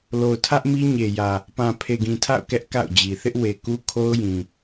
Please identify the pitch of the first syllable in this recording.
low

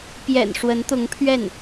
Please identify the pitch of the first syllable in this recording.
low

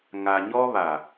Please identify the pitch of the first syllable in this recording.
low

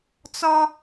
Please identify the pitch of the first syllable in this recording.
high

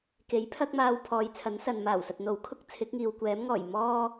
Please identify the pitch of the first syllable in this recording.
rising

